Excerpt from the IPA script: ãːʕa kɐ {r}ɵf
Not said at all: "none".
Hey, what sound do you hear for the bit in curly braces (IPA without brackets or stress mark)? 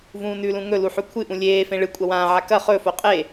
χ